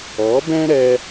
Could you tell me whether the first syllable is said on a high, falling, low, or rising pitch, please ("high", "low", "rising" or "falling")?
rising